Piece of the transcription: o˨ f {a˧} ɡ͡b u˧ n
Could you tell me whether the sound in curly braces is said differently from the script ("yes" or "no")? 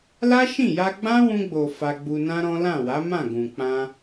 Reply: no